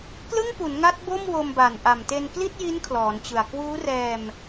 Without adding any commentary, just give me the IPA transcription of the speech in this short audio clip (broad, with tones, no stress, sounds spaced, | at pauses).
k l ɯ˥˩ ŋ p u˩˦ n ŋ a˦˥ t̚ b o˥˩ m w o˧ m b a˨˩ n ʔ a˨˩ m t e˧ n k l i˥˩ t̚ j i˦˥ n kʰ l ɔː˩˦ n t͡ɕ ɯ˨˩ a̯ k w uː˦˥ r ɛː˧ m